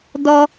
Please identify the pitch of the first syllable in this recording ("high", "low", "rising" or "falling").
low